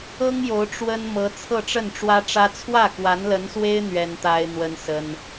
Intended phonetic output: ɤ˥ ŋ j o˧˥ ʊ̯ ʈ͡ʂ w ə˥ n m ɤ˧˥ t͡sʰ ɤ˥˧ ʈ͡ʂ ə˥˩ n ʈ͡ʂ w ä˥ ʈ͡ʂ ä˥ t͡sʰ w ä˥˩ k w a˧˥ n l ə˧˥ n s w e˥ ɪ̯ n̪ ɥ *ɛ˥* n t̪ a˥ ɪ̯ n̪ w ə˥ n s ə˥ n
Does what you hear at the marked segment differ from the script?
no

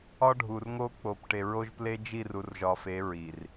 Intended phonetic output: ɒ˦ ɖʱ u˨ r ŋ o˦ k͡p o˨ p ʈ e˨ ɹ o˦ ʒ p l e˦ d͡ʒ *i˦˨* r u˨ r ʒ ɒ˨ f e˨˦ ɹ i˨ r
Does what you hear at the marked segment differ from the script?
no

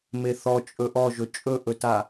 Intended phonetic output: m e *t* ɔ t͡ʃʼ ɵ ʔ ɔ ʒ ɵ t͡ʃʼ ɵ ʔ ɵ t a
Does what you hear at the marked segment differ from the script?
yes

